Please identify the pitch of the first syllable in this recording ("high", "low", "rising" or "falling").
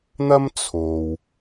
high